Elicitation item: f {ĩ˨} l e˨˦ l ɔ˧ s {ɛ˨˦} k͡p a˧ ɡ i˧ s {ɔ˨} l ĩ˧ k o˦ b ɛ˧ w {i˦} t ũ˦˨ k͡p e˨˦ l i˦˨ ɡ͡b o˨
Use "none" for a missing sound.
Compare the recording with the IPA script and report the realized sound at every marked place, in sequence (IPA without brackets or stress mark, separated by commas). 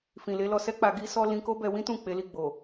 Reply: ĩ˨, ɛ˦, ɔ˦, ĩ˦